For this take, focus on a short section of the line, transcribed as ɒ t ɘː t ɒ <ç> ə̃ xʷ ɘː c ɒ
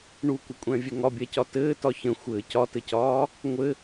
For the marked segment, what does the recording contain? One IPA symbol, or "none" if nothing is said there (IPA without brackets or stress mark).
ç